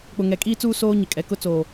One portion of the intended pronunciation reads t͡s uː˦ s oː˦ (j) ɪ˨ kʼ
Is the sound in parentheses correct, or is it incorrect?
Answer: incorrect